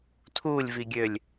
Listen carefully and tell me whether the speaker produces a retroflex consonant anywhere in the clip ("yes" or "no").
no